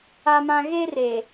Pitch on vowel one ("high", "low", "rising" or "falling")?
high